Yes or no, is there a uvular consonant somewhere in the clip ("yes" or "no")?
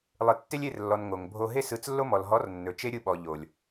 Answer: no